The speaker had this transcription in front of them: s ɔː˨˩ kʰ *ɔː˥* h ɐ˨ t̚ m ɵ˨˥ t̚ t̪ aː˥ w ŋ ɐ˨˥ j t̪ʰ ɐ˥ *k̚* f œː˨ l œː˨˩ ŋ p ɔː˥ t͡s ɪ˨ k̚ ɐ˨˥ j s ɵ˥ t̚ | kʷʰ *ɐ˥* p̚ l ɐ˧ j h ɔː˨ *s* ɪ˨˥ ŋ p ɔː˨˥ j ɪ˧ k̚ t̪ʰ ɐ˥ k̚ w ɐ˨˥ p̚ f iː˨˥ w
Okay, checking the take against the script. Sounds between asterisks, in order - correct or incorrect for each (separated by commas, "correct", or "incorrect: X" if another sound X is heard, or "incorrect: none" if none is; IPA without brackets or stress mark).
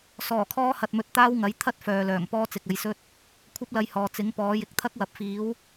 correct, incorrect: t̚, correct, incorrect: t͡s